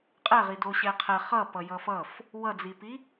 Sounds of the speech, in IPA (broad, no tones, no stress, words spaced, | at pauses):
qʼɛʁido ɕɛqʰɛ χʌpʌ jʌfʌf | wʌd͡zipi